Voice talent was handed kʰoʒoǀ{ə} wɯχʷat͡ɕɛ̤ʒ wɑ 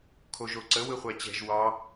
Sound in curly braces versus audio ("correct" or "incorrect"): correct